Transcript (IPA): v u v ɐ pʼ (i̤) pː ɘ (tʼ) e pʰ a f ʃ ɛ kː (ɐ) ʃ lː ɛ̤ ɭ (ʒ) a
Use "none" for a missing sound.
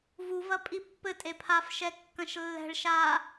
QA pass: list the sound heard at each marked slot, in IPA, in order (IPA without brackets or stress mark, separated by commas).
i, tʼ, ɐ̃, ʃ